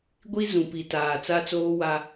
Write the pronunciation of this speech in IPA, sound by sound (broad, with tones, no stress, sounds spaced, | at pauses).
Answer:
ɡʷ i˦ z ũ˨ p i˨ t aː˨ t͡s a˦ t͡s oː˦ w a˦